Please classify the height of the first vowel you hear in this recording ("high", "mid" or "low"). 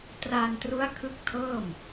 low